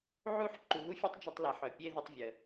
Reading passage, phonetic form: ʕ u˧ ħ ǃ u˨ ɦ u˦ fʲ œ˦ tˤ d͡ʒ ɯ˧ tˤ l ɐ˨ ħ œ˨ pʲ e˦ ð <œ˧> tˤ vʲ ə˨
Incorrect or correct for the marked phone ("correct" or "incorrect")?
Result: incorrect